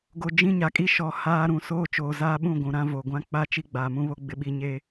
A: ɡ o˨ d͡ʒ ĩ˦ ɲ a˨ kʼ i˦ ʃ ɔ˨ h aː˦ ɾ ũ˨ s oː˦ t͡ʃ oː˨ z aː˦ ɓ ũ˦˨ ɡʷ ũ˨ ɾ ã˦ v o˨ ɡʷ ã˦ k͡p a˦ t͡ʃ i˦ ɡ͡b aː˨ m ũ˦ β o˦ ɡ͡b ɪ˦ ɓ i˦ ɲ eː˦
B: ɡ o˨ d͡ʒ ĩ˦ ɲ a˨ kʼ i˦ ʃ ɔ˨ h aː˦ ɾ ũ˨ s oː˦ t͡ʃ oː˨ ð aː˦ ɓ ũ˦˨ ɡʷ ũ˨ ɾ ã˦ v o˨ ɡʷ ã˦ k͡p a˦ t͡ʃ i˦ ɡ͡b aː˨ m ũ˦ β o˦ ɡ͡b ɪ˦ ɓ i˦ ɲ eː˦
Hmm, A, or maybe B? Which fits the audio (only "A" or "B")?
A